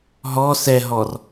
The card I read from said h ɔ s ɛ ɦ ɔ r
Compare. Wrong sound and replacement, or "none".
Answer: h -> ɦ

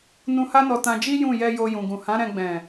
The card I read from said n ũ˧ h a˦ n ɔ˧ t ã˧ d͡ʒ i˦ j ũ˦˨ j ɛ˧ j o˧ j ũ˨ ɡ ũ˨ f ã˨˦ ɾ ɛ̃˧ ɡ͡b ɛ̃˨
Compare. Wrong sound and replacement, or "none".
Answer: f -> h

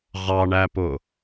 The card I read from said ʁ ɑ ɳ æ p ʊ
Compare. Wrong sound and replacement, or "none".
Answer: ʊ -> ʊː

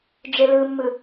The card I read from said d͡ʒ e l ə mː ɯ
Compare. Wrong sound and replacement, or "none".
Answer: ə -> ɯ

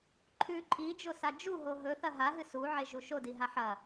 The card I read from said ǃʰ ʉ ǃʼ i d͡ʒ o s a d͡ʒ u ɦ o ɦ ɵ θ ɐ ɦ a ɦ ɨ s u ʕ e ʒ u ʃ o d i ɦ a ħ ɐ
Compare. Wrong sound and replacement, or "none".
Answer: none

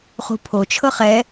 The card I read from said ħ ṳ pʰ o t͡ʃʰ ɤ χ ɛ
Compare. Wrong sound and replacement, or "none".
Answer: ħ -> χ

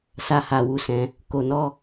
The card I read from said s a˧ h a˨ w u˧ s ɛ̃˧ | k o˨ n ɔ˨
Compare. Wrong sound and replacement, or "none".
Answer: ɔ˨ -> ɔ˧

